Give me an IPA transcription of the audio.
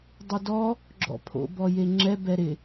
dˤ u d ɔ | ɡ͡ǁ ɔ̰ pʰ o̰ b ɔ j e ŋ͡ǁ ɛ b ɛ ɾ ɪ

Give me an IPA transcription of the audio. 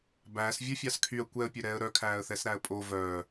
b æː s vʲ ɵ fʲ ɑ s kʰ y ə̯ kʷ ɛ ə̯ pʲ ø ɾ ɛː ə̯ ɾ œ kʰ æː ə̯ θ ɛ s ɾ æ ə̯ pʼ o v œː

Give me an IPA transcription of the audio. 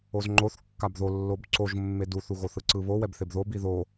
o z ŋ͡ǃ o θ kː a b ð o lː o b ǀ o ʒ mː e d u θ u ɣ o θ ɯ ǀ ɯ β o w ɛ b θ e b ð o b i ð o

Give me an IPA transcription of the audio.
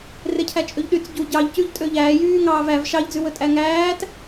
r e cʰ æ t͡ʃʼ ø ʎ ɗ y t͡s ɟ u ɟ ɑ ʎ c ʉ ʎ tʼ ø ʎ æː j yː ŋ ɑː v æ v ʃ ɑ ʎ d͡z ʉ w ɵ tʼ æ ŋ æː t

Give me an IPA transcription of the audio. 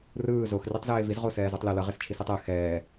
r ɯː z o x r i tˤ z eː v i z ʁ o s ɛː z u tˤ l e l ʌ ʁ e s t͡ʃʰ i s i tˤ ɛ x ɛː

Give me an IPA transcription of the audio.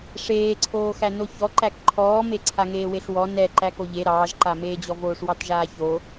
ʂ eː ǀʰ oː x æ n o ç ɔ ǃ æ k ǃʰ ɔː m e ǀʰ a ŋ eː w e ɬ w ɔ n ɛ ǃ æ k o ʎ e ɾ ɑː ʒ ǃ a m eː d͡ʑ ɔ v oː ʂ w ɑ t ʒ aː ç o

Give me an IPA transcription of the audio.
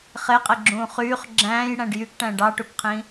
χ e qʼ e ɡ͡ǁ ũː χ yː χ ɡ͡ǁ æ̃ː j ɽ æ̃ ɖ j y k ʈ æ̃ ɖ ɑ ʈ u k qʰ ĩ

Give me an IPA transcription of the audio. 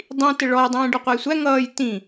dˤ ĩ t ɪ ɭ ɔ j dˤ ĩː ɖ ɔ qʷ æ j sʷ æ ŋ ʌː j t ĩ

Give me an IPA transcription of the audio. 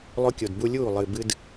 lˠ o˧ kʲ o˨ d b u˧ lʲ uː˦˨ lˠ ɨ˨ b ɨ˦ d

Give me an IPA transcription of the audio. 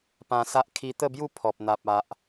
p ã˧ s a˦ ʔ kʰ i˧ t̪ ə˥˧ b j u˥˧ pʰ ɔ˨ p̚ n̪ a˨ p̚ a˨ ʔ

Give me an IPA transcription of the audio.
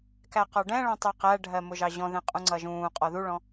k æ q ɒ ɖ ɛ̃ ɭ ɔ̃ tˤ ɛ q æ ɖʱ ɜ m ʊ ʒ ɑ ʑ ɔ̃ ð ɛ̃ qʼ ũ ŋ͡ǀ ʌ ʒ ũː qʼ ɔ ð u ɭ ɔ̃

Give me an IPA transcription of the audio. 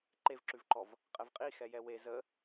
ǃ e v ǁ ʉ v ǃ ɔ v | qʼ ɛ v qʼ i x ɛ j ɛ w e z ə

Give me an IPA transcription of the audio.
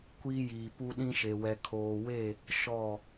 kʷ iː˦ j iː˨ p u˦ ɗ ĩ˦ ʃ e˨ w ɛ˨ kʰ oː˨ w e˦˨ | ʃ ɔ˦˨

